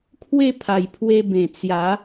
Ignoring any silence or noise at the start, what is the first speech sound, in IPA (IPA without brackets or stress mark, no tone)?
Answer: kʰ